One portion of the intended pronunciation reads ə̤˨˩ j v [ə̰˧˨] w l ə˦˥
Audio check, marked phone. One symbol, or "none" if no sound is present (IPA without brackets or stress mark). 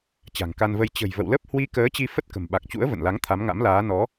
ə̰˧˨